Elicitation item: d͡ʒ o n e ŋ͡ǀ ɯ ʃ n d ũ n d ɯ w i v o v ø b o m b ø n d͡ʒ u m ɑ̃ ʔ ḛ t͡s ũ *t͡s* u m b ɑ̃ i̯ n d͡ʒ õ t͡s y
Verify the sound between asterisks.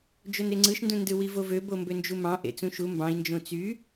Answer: incorrect: ʃ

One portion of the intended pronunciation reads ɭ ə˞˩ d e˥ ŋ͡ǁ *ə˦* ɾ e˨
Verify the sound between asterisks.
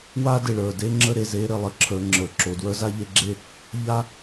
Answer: correct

